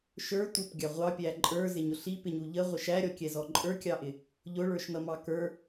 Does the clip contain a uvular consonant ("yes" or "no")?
yes